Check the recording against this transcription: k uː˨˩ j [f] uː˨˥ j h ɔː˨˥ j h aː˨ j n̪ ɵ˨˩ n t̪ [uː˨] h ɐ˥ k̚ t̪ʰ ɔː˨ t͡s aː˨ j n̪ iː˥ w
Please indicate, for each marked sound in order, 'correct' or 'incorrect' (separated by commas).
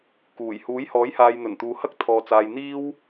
incorrect, correct